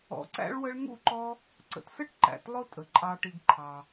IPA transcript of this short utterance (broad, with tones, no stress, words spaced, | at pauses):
ɔ̰˨ǀæ̰˦ɭwə˦ɭ ŋṵ˥ǃɔ˦ | ǀə̰˩tsə˥ʈ ǃæ̰˩tlˠʊ˦ tʼə˩ǃʼɑ˨ʈi˨ɡǃʰɑ˩